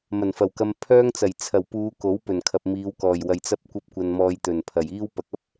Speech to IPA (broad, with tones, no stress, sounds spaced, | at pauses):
m ɐ˨˩ n f ɐ˨˩ w k ɐ˧ m pʰ œː˥ ŋ t͡s ɐ˨˩ j t͡sʰ ɐ˨˩ w p uː˨˧ k o˨˥ w p ɵ˨˩ n kʰ ɐ˨ p̚ m iː˨˧ w k ɔː˨˩ j w ɐ˨˩ j t͡s ɐ˧ p̚ kʷ ɐ˥ p̚ kʷ ɐ˧ n m ɔː˧ j t̪ ɵ˨˩ n pʰ ɐ˨˩ j iː˥ w p ɐ˨ k̚ ɐ˥ p̚